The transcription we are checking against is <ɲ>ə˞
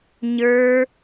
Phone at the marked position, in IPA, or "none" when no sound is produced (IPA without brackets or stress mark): ɲ